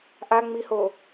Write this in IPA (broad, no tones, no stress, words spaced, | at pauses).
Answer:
ʔaŋ͡miho